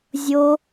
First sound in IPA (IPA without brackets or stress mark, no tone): zʲ